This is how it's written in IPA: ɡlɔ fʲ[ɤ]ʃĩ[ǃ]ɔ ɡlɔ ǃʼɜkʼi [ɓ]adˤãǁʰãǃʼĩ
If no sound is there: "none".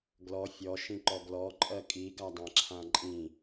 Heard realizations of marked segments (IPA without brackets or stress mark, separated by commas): ɔ, ǃ, ɡ